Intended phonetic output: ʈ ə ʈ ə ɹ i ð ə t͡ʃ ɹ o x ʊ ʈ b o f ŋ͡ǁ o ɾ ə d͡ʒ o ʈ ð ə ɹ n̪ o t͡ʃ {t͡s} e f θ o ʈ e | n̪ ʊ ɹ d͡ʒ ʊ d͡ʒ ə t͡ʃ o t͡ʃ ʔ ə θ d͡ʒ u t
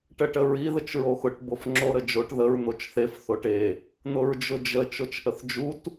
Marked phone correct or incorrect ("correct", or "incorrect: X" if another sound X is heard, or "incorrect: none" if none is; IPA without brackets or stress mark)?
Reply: incorrect: θ